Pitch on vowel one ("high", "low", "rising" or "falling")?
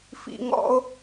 low